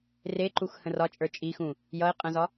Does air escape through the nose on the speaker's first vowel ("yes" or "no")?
no